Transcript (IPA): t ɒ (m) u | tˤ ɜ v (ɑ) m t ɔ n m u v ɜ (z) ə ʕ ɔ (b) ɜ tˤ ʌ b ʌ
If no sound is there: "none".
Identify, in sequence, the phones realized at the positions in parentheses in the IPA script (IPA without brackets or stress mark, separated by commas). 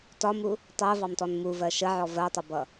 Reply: m, ɑ, ʃ, v